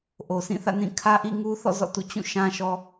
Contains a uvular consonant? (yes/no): no